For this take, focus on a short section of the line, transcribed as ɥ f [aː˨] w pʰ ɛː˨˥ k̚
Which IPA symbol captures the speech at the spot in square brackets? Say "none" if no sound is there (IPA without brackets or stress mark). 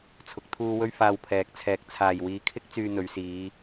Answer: aː˧